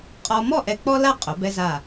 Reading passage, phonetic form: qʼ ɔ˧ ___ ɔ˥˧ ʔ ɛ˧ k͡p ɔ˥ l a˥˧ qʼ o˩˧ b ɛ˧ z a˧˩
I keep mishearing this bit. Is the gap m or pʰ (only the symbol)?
m